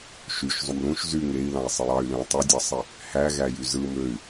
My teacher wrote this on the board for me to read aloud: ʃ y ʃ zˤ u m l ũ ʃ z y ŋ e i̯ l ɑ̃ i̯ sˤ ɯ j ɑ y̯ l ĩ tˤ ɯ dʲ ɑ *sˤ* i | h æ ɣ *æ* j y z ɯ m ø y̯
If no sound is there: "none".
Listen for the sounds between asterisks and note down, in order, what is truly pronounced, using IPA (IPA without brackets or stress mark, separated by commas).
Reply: sˤ, æ